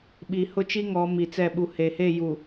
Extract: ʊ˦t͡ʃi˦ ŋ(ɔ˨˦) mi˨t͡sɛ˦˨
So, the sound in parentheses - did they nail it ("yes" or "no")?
yes